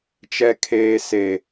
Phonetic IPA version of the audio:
t͡ʃ ɛ˦ kʰ eː˦ s e˦

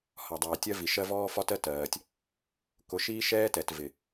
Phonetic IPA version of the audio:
h ɒ˨ dˤ ɛː˨ tʲ ɜ˦ v i˨ ʃ ɜ˦ v ɔː˦ f ɒ˦ t ɜ˦ t ɜː˨ tʲ | k ʊ˨ ʃ iː˦ ʃ ɛː˦ t ɛ˨ t v ɪ˨

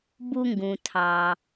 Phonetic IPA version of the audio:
b u˧ ŋ ɡ ũ˩ tʰ ɑ˩

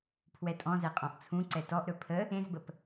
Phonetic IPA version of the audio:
pʰ w ɛ tʼ ɔ̃ z ɛ qʼ ɔ̃ ʔ t͡sʰ ũ ǀ ɛ t ɔ ʔ ɾ ɵ pʰ ə | ẽ z b ə p

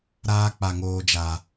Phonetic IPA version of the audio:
ɾ aː˧ k͡p a˨ ŋ oː˨ d͡ʒ a˨

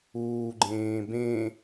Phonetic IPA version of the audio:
uː ɡ͡ǃ ẽː b ẽ

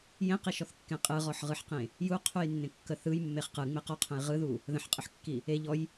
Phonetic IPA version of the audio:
j ẽ q i ʃ ɔ θ kː ẽ qʼ ɯ ʁ ɔ ħ ʁ ɯ ħ q ẽ | j u qʰ u j nː ẽ kː ə θ ɯ j mː e χ q ɯ ŋ͡m e q ɔ qʰ ə̃ j ʁ ɯ ð u | ð ə̃ ħ qʼ ə ħ kː i | e ʎ ɔ j

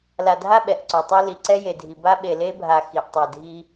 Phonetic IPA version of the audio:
l a˨ dʱ a˦ ɓ ɛ˨ ʔ ǀ o˨ tˤ i˦ l i˨ ǀ ɛ˦ j e˨ dʱ i˨ b a˦ ɓ e˨ l e˦ bʱ a˨ x i˨ ʔ tˤ ɛ˨ dʱ i˦

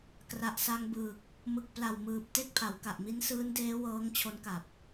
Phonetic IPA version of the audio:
k r a˨˩ ʔ s a˧ ŋ b ɯː˨˩ k̚ | m ɯ˨˩ k̚ p l a˨˩ w m ɯː˨˩ p̚ t e˥˩ k̚ pʰ a˩˦ w k a˨˩ ʔ m i˦˥ n s ɯː˦˥ n d eː˦˥ w ɤː˦˥ ŋ t͡ɕʰ o˦˥ n k a˨˩ p̚

